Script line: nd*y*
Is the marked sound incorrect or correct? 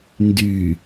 correct